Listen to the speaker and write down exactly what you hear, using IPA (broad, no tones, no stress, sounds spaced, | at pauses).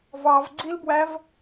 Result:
v ɑ v ɡ͡ǀ i l b w æ v